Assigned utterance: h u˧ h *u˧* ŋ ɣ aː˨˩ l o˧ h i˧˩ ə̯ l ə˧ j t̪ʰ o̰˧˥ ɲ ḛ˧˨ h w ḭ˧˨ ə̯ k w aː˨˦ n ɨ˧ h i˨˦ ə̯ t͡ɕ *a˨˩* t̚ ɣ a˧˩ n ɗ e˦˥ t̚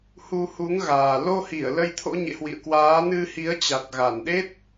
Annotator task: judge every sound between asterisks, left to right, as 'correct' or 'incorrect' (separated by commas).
incorrect, correct